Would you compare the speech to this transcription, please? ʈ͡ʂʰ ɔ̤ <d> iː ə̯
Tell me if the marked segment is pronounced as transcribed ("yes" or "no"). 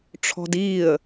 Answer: yes